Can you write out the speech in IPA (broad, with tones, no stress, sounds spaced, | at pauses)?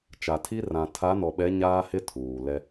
t͡ʃ a˨ tʰ i˦ r ã˨ tʰ a˨˦ n ɔ˨ ɓ ɛ˨˦ ɲ aː˦ h ɪ˦ tʰ uː˨ l ɛ˦